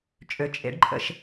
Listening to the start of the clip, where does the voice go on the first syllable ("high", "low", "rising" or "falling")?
rising